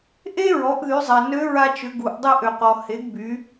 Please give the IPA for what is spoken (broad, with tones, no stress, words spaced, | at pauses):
ʔe˥ɹɔ˩˧ʔ ðy˩˧zˤa˩ nø˧˥ɹa˧t͡ʃʏ˩˧ ɡu˩ʔ dˤe˧ʔø˩qɔ˩ he˩˧ɡby˩˧